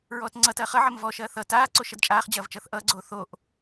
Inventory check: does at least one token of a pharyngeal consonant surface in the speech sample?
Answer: yes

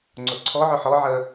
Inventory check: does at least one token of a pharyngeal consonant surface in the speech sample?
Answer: yes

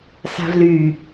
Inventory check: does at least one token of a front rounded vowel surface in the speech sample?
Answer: yes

